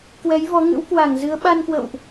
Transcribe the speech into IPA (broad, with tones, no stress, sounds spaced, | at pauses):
k w ɛ˨˦ j v ɔ˨˦ ŋ ɨ̰˧˥ w k w a˧˩ ŋ z ɨ˨˦ ə̯ ɓ a˧ n k w ə̰˧˨ w ʔ